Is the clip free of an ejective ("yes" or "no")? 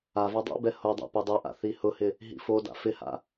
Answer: yes